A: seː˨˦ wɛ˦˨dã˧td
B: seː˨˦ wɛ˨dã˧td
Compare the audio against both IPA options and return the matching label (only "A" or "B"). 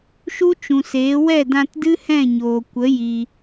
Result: A